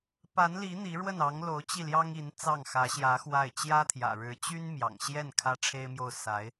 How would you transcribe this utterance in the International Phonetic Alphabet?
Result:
p a˧˥ n l i˧˥ n̪ i˧˥ ɻ w ə˥˩ n ɑ˧˥ ŋ l o˧˥ ʊ̯ t͡ɕ i˥˩ l j ɑ˥ ŋ i˧˥ n t͡s ɑ˥˩ ŋ x ä˧˥ ɕ j ä˧˥ x w a˥˩ ɪ̯ t͡ɕ j ä˥ t̪ʰ j ä̰˨˩ ɻ ɻ̩˧˥ t͡ɕ y˥ n m j ɑ̰˨˩ ŋ ɕ j ɛ˥˩ n kʰ ä˥ ʈ͡ʂʰ e˥ ɪ̯ m j o˥˩ ʊ̯ s a˧˥ ɪ̯

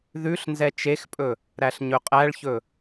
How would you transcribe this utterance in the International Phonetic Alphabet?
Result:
ð ʉ ɬ n z ɛ t͡ʃ e x pʼ ɵ | ɾ æ ɬ ɲ ɵ qʼ æ ɭ ç ɵ

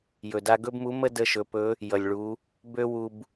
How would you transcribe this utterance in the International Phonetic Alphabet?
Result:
j ɵ˩ d a˧ ɡ ɵ˥ b m u˧˥ m ə˥ d ə˧ ʃ ɵ˩˧ p ɵ˧˥ | j ʌ˩ lʲ ɭ u˩˧ | b ø˥ w u˧ b

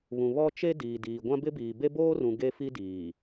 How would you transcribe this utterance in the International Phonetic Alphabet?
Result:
β ũ˨ β ɔ˦ t͡ʃ e˦ d iː˨ d iː˨ ɡʷ ã˦ b ɪ˦ b iː˨ b e˦ b oː˦ r ũ˨ ɡ e˦ f i˦ d iː˨

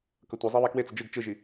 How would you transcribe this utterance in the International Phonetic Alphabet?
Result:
k ʌ tʷ ɛ zˤ a β a k w e t͡s ʌ d͡ʒ ɯ ɡ t͡ʃ ɯ ʒ i

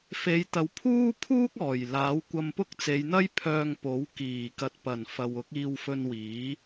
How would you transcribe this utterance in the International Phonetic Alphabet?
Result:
f e˨˧ j t̪ ɐ˨˧ w pʰ uː˥ pʰ uː˥ k̚ ɔː˨˩ j l aː˨˥ w kʷ ɐ˧ m p ʊ˥ k̚ t͡s e˨˧ j n̪ ɐ˥ j pʰ œː˧ ŋ p o˨˥ w k iː˨˩ k ɐ˨ t̚ p ɐ˨˩ n f ɐ˨ w ʊ˨˥ k̚ iː˧ w f ɵ˧ n w iː˨˥

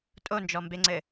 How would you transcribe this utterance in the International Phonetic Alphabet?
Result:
tʼ o n d͡ʒ ɔ m b e ŋ͡ǀ ɘ

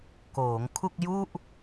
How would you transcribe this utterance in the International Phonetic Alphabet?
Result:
k oː˩˦ ŋ kʰ u˥˩ k̚ j u˥˩ ʔ

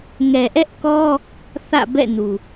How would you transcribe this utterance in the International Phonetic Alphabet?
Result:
ŋ ɛ˨ ʔ ɛ˦ ʔ k ɔ˦ | θ ä̰˦˨ b ɛ̰˦˨ n u˨

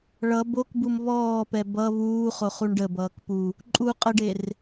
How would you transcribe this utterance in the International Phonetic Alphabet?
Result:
ɭ ʌ b o k b u m β ɔː p ɛ b ʌ β uː χ o χ u ɳ ɖ ə b ʌː k p u | ǃʼ u qʼ ə ɖ e r

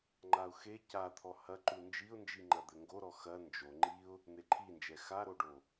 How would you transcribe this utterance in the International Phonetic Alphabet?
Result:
ŋ͡ǃ a ʊ̯ x e c a t̪ʰ ɔ h ɐ ǃ u n d͡ʒ i ʊ̯ n d͡ʒ i ŋ͡ǃ ɐ d̪ ɘ ŋ ɡ o ɾ ɔ x ɐ n d͡ʒ o ŋ͡ǃ i ʊ̯ | n̪ e ǃʰ i n d͡ʒ ɛ x a ɾ o ɖ o

